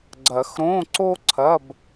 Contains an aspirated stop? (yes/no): yes